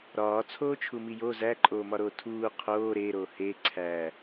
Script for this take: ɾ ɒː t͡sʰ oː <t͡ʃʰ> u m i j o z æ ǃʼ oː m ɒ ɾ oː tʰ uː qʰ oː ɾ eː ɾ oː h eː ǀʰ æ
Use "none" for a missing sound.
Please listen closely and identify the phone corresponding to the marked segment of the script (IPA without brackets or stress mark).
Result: t͡ʃʰ